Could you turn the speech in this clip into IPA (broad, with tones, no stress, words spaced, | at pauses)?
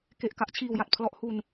ke˨˩ʔ ka˦˥ʔt͡ɕʰiː˨˩wja˨˩t̚ pʰlɔ˦˥ʔhu˧n